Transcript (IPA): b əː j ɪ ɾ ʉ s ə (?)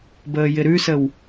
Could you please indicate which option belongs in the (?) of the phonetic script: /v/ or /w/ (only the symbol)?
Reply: w